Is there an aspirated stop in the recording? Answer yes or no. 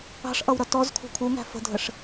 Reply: yes